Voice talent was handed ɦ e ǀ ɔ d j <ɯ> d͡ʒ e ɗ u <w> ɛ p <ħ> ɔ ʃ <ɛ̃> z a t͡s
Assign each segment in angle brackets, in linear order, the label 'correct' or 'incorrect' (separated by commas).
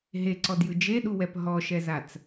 correct, correct, incorrect, incorrect